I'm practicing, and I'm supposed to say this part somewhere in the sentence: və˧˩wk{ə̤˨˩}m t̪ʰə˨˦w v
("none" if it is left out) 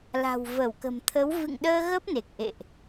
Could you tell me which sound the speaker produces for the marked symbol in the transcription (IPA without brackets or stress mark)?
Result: ə̤˨˩